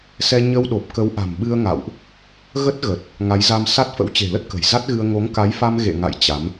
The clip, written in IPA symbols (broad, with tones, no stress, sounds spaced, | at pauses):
s ɛ˧ ɲ ə˧ w ɗ o˨˩ p̚ k ə˨˦ w ʔ a̤˨˩ m ɓ ɨ˧ ə̯ ŋ a̰˧˨ w ʔ | ɣ ə˦˥ t̚ ɣ ə˨˩ t̚ | ŋ a˨˦ j z a˧ m s a˦˥ t̚ f ə̰˧˥ w t͡ɕ e̤˨˩ l ə˦˥ t̚ k ə̤˨˩ j z a˦˥ t̚ ɣ ɨ˧ ə̯ ŋ o˨˦ ŋ k a˨˦ j f a˧ m ɣ ḛ˧˨ ŋ a̰˧˨ j t͡ɕ a˨˦ m